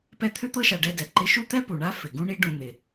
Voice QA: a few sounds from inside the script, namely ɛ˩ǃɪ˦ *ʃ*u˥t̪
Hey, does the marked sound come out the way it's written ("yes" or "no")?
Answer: yes